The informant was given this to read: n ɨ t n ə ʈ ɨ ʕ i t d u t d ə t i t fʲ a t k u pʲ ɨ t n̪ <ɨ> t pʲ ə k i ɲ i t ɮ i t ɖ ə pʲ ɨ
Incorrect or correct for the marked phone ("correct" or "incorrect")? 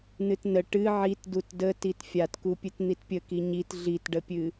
incorrect